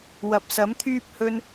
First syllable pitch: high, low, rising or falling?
low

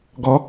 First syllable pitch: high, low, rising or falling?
rising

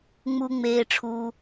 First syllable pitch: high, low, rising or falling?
low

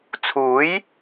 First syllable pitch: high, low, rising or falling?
rising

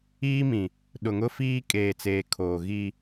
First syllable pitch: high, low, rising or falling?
high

